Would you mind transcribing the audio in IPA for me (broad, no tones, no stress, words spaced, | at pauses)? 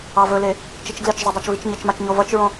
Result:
ɑvɵle | t͡ʃit͡ʃɡlet͡ʃzˤɵ dˤɑt͡ʃvit͡ʃɲət͡ʃmat͡ʃ ɲovʌt͡ʃɹõ